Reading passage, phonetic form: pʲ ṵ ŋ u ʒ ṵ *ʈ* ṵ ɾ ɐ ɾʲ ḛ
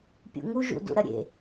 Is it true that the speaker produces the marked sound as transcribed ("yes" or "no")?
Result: no